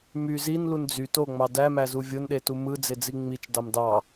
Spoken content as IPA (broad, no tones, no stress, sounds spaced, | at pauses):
m y z i n l u n d͡z y t o ŋ͡m ɑ d æ m æ z u vʲ o n ɗ e t u m ɯ d͡z e d͡z i ŋ͡m i t͡ʃ d ɑ m d ɑ